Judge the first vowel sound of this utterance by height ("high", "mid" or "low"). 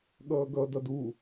mid